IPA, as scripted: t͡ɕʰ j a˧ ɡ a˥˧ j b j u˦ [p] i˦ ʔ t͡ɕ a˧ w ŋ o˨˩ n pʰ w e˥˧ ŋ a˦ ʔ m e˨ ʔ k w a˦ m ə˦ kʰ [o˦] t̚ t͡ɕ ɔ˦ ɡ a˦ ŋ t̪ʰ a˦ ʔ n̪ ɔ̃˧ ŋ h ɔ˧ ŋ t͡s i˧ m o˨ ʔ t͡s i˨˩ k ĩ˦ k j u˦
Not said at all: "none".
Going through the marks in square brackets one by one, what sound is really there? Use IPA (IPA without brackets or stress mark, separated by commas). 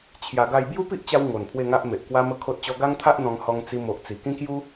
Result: p, o˦